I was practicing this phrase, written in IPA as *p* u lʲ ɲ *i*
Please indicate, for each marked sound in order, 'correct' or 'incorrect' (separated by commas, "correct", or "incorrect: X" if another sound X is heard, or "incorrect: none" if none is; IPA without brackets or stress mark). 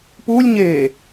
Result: correct, incorrect: e